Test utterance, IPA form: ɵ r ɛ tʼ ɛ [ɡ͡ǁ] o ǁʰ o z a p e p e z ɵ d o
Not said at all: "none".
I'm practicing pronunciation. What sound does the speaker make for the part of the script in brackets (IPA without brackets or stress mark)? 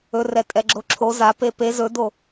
ɡ͡ǁ